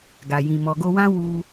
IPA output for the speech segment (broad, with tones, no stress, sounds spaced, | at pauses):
ɡ a˨ j ĩ˨ m ɔ˨ ɡ o˧ w ã˦ w u˧